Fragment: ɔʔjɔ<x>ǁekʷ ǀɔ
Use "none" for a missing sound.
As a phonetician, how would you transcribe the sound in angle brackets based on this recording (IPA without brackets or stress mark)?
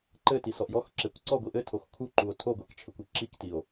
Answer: x